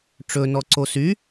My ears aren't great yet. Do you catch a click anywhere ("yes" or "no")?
yes